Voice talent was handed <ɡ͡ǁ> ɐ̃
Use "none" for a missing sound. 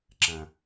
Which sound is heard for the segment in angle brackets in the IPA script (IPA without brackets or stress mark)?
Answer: ǁ